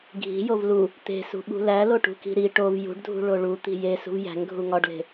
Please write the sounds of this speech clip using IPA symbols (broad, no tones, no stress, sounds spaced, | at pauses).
ɡʱ i̤ j o v l u | t̪ e̤ s ṳ ɓ ṳ l æ l o ʈ ṳ k i̤ ɾ i ʈ o v j ṳ ɖ dʱ ṳ ɭ o ɭ u t̪ i̤ j e s ṳ v j æ̤ ŋ ɡʱ u ŋ ɒ ɖ l e̤